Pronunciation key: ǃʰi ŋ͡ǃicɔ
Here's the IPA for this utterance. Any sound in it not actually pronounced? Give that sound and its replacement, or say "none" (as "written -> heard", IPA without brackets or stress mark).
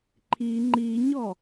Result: c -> ɲ